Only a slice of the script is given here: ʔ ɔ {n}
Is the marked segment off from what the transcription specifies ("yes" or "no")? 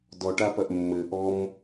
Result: yes